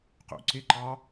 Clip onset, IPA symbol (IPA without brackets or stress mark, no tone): q